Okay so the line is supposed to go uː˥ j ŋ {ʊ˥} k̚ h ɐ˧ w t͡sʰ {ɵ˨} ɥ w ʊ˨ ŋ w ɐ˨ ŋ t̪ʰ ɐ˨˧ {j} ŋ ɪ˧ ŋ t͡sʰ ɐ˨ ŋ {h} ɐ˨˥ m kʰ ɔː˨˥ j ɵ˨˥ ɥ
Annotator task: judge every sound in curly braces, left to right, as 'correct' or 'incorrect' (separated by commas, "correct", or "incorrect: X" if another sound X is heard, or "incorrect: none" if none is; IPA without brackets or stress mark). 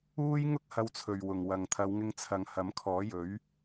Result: correct, correct, incorrect: w, correct